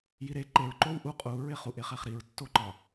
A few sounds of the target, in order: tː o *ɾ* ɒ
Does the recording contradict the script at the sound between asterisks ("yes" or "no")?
yes